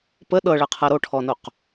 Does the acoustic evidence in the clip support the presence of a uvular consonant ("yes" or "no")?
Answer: yes